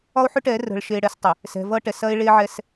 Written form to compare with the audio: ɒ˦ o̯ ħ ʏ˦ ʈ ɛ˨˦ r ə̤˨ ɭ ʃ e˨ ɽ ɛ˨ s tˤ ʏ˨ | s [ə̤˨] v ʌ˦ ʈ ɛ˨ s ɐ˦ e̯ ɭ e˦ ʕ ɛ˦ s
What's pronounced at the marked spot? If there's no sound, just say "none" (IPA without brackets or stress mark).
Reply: ɛ̤˨